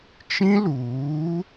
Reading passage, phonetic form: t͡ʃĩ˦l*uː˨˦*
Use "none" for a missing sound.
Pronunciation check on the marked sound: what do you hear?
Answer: uː˨˦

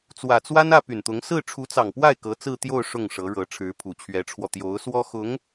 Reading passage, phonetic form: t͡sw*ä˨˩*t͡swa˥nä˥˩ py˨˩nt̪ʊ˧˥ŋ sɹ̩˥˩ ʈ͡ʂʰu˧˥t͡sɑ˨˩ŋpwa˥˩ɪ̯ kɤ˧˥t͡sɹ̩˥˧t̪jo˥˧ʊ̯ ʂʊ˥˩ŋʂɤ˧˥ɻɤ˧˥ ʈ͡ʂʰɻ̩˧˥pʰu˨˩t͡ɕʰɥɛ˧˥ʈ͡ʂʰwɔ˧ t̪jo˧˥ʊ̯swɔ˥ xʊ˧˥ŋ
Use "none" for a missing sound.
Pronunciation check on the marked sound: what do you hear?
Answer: ä˨˩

